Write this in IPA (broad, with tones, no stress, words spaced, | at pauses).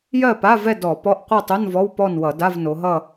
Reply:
jɜ˥˨pa˧˥˧vɛ˥˨ dɔ˧˩˧pɔ˧˥˧ʔ qʷɜ˥˨tˤo˧˥˧n vɔ˧˥˧wpɔ˥˨n wʌ˧˩˧da˧˥˧vno˩˧ɦʌ˥˨